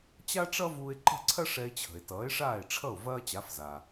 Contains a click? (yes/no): yes